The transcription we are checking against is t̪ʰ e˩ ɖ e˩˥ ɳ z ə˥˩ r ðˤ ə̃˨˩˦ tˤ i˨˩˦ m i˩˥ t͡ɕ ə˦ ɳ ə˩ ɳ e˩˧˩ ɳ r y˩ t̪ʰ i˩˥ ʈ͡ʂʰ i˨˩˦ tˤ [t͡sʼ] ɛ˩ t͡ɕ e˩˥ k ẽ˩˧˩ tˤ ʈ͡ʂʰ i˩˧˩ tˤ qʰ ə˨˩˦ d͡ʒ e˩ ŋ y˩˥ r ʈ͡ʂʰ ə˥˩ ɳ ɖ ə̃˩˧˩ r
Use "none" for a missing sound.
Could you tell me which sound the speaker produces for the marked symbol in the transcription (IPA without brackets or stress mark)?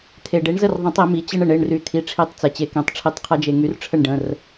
t͡s